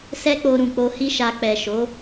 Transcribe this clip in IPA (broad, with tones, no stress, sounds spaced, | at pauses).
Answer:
s ɛ˦ k͡p o˧ ɾ ũ˨ k͡p o˧ h i˦ ʃ a˧ k͡p ɛ˨ ʃ o˨˦